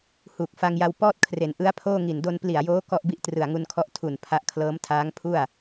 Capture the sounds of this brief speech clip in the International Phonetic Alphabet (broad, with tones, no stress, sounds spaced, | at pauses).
h uː˨˩ k̚ f a˧ ŋ j a˧ w p ɔː˥˩ t̚ kʰ r e˩˦ n ʔ ɯ˦˥ a̯ pʰ oː˥˩ ŋ i˨˩ n d o˧ n p l i˨˩ a̯ j oː˦˥ k ɔ˥˩ ʔ b i˥˩ ʔ t r ɯ˨˩ a̯ ŋ u˧ n kʰ ɔ˦˥ ʔ tʰ u˨˩ n pʰ a˦˥ ʔ kʰ l ɤː˦˥ m tʰ aː˦˥ ŋ pʰ u˥˩ a̯